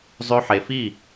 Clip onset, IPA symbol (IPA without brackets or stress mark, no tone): zˤ